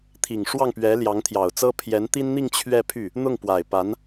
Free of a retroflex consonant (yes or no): no